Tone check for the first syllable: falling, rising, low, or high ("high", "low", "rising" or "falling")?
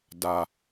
low